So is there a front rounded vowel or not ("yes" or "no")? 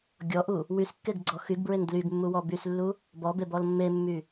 yes